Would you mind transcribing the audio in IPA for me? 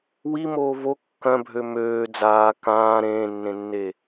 wimoː vo kːœ̃bʱø møː d͡zaː kãː ɾẽːnːẽnːe

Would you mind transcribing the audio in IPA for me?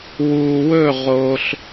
wuː˨wɵ˦˨ ʁoː˧ɬ

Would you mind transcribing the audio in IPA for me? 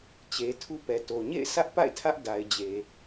t͡ɕe˨tʰu˦pɛ˨to˨ ɲḛ˦˨ɪ̯sä˦ʔpa̰˦˨ɪ̯ tʰä˦ʔ da˨ɪ̯d͡ʑe˨

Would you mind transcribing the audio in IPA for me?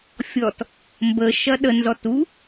fʲɔt | mbə ʃɐɗə nzɔtu

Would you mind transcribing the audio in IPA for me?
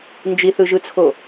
nd͡ʒiθɯʒɯt͡sʰo

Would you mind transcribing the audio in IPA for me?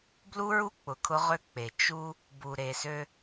blu˦ɹu˦ k͡pʊ˨kʰʊ˦ʁø˦ k͡pe˨ t͡ʃu˦ | bu˨ɾe˨sø˦

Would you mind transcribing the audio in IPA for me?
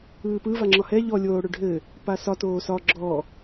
ɯːpɯ vaŋ͡ǁɒhɛ ʎɔ lʲoːɽøɖʱɘ | pasɒ toːsɒ ɡ͡ǁɔ

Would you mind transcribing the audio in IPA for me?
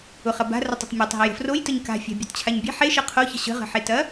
ʊχɐ ba̤rətˤətˤ mʲetˤɦɐj ə̤frojtəɲ ka̤fʲa̤ bʲɐtt͡ɕʰaɲbʲe̤ ħeʃɤ qʰoçə̤ ɕə̤ʁə̤ħetɐ

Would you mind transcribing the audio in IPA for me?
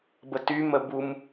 bətymə bum

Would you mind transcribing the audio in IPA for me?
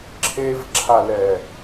ǁʰevǁʰalɛ

